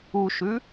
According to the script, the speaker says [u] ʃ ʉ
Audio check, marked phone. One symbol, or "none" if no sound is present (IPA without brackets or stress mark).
u